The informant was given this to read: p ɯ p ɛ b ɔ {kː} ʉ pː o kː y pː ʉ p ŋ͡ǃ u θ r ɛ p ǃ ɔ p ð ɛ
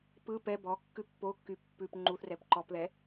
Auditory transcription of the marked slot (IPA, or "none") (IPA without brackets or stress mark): kː